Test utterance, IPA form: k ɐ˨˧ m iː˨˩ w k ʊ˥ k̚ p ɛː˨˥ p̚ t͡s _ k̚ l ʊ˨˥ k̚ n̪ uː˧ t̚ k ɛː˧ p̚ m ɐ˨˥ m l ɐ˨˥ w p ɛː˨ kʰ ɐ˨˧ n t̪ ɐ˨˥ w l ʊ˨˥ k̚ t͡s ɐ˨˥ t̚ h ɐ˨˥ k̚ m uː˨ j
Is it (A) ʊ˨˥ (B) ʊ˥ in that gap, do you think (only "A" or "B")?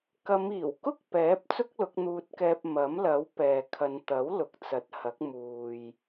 B